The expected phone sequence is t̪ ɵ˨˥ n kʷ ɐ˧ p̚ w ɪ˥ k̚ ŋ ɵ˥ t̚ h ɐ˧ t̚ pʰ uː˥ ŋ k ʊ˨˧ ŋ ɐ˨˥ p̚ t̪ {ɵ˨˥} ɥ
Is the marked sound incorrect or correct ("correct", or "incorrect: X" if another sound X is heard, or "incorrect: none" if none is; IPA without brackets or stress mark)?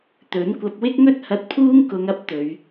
incorrect: ɵ˨˧